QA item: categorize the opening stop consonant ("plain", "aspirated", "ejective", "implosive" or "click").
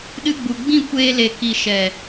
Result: implosive